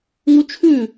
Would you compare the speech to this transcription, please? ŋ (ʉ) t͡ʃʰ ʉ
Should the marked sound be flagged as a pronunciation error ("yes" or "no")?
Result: yes